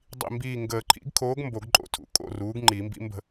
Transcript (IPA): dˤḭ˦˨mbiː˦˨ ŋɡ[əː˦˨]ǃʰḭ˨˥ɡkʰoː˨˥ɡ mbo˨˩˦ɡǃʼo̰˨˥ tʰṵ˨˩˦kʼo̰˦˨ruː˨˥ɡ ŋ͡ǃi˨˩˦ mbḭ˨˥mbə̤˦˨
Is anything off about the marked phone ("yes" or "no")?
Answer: yes